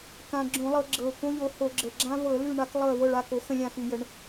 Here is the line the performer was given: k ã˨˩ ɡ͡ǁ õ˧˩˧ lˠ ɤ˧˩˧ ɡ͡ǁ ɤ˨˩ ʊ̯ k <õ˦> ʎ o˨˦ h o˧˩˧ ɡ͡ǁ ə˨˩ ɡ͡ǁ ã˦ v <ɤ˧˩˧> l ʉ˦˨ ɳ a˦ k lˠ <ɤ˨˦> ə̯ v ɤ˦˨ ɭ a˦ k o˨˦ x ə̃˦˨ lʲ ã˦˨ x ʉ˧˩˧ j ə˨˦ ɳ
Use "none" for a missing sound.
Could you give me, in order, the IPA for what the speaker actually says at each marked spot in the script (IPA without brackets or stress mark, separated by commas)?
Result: õ˦, ɤ˧˩˧, ɤ˦˨